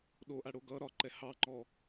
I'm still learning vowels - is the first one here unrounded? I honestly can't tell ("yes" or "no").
no